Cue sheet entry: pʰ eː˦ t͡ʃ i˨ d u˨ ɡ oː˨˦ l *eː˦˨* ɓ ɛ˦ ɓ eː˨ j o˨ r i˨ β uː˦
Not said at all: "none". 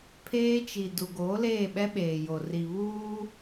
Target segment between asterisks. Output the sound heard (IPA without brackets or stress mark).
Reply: eː˦˨